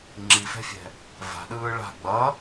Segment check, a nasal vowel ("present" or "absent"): absent